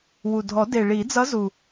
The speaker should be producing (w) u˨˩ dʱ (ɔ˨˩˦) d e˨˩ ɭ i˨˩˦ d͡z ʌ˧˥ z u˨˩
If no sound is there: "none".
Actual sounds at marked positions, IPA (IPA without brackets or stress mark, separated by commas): w, ɔ˨˩˦